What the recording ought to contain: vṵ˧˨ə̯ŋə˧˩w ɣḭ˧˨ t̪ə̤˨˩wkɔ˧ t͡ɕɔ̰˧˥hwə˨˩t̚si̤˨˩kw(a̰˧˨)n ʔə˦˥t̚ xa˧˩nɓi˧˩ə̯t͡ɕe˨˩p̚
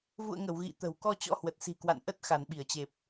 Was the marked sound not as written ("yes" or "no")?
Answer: no